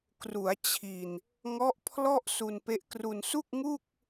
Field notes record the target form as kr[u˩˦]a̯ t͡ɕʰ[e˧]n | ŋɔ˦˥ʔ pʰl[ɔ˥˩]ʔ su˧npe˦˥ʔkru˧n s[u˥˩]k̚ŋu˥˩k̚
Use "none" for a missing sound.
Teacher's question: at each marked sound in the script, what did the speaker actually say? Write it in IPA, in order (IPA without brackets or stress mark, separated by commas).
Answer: u˩˦, i˧, ɔ˥˩, u˥˩